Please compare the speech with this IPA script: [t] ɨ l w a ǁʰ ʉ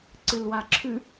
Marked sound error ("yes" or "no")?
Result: yes